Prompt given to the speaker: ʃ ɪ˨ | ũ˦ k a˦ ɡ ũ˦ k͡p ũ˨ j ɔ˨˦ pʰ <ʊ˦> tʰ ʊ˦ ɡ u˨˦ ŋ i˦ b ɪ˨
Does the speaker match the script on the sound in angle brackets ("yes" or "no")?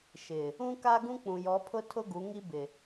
yes